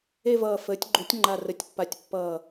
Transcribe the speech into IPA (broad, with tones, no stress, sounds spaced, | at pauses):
e˥˧ v ʌː˧˩ f əː˩˥ tʲ ɡ͡ǃ u˩˥ tʲ ŋ͡ǃ a˧˩ r ə˩˥ tʲ pː a˧˩ tʲ pː ʌː˧˩